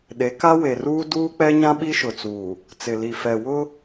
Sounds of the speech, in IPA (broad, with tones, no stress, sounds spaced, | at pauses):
ɗ e˨˦ k a˦ w e˨ r uː˦ d uː˦ k͡p ɛ˦ ɲ ã˦ ɓ i˦ ʃ ʊ˨ t͡s uː˨ | t͡s ɪ˨ l i˨ f ɛ˨ w ʊ˦